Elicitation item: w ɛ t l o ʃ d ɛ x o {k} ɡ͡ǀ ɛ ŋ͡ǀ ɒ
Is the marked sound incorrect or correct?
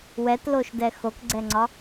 correct